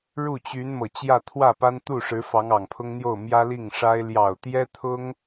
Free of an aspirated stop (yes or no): no